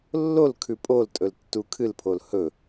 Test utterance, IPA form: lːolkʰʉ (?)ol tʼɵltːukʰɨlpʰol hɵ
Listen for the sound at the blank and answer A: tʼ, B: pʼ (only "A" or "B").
B